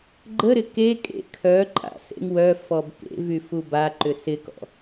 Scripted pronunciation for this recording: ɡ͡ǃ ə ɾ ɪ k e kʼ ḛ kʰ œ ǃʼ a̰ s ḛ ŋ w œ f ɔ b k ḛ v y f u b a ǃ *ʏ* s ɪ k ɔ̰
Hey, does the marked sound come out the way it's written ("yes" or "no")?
yes